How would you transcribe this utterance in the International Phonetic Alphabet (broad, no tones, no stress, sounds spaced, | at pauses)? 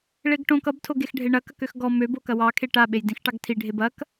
ɭ e ɡ ʈ õ k ʌ b tʰ o ɡ e x ɖʱ e ɳ ɐ k ɐ k ø x ɡ ɔ m ø b o k ɐ w ɑ kʰ e ʈ a ɓ e j d ĩ x ʈ ɑ ɡ tʰ i ɖʱ e b ɐ k